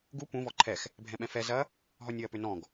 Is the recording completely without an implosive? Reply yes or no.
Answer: no